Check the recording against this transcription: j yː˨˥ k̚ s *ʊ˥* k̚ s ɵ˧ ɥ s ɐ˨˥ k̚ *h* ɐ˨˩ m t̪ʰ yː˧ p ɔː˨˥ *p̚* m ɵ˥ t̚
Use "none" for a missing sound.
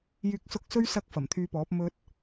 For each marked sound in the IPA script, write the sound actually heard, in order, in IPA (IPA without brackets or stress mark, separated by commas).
ʊ˨˥, f, p̚